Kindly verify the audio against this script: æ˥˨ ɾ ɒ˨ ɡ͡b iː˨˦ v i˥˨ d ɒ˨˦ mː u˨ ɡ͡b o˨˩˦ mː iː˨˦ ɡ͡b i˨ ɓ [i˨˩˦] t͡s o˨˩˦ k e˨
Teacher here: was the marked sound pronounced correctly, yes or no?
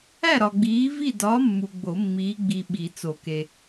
yes